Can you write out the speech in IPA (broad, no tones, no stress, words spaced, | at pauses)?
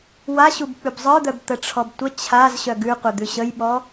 wa ɕubk͡pʉbzˤə˞d̪œb t̪əʈ͡ʂʰɔbtʷə t͡ɕʰaz ɕœɡʉqʷɘ d̪ʉɕəjɓɔ